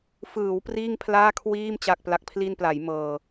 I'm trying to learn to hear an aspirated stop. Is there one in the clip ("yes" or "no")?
yes